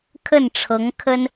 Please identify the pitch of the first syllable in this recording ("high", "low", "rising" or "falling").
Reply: falling